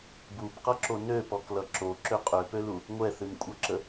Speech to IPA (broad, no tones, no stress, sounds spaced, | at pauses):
b u b q ʌ ǁ o n ø p ɔ k l ʌ ǁ o ǁ ø qʼ ø p ø l u | ŋʷ ɛ θ ɨ n kʷʼ ʌ ǁ ə